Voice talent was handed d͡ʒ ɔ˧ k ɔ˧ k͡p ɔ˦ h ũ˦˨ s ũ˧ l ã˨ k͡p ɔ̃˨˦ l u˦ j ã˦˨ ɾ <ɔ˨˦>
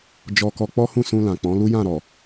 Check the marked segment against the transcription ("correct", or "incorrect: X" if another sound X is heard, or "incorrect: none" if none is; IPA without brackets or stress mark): incorrect: ɔ˨